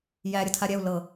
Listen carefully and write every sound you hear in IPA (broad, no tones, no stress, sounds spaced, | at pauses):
j æ ɾʲ ə tʰ a ɾʲ ɛ u̯ l ɤ